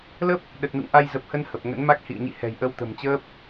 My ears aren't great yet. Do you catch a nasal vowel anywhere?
no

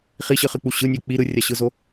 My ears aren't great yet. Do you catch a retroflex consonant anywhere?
no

